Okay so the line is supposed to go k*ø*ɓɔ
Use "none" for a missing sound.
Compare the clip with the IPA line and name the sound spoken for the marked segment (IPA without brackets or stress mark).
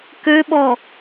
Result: ø